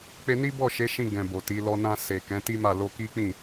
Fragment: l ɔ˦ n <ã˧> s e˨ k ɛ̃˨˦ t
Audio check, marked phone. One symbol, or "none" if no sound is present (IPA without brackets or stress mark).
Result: ã˧